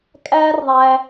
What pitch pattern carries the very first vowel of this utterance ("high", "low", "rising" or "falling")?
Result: high